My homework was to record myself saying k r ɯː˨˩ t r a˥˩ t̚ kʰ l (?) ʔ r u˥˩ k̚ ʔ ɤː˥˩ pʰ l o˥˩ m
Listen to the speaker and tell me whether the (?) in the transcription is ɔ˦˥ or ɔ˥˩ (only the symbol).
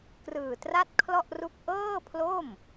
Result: ɔ˥˩